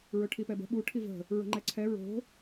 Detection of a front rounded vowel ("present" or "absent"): absent